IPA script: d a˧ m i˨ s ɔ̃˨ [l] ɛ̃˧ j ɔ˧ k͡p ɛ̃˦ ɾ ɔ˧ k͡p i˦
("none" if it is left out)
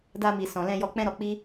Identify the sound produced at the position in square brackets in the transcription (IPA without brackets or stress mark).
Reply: l